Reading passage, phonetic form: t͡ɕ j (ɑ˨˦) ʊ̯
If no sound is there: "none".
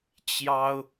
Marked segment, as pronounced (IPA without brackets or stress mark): ɑ˦